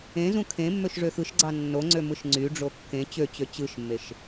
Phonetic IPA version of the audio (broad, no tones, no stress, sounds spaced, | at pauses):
ẽ z ũ kʰ ẽ mː ø ʃ ʐ ø x ɯ ʃ ɡ͡ǀ ɑ nː o ŋ͡ǀ ø m ɯ ʃ ŋ͡ǀ y ɖ͡ʐ o kː ẽ t͡ɕ ø t͡ɕ ø t͡ɕ ɯ ʃ mː e ʃ